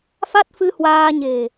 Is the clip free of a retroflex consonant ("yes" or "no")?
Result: yes